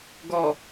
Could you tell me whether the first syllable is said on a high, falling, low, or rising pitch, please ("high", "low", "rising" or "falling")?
low